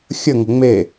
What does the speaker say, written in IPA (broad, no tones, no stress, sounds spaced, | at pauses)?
xʲ ə ŋ ə̤ ŋ͡m e